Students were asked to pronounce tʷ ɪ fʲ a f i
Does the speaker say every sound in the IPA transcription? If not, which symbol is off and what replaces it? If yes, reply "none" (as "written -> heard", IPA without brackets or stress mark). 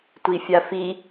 ɪ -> i